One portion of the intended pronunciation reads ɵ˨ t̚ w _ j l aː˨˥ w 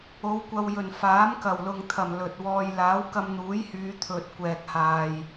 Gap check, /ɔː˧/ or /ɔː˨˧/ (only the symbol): ɔː˧